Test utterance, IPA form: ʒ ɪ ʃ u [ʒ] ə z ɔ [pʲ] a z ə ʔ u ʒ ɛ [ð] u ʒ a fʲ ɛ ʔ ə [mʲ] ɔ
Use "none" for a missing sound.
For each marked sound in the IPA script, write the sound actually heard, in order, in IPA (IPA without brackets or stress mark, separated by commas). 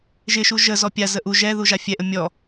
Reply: ʒ, pʲ, ð, mʲ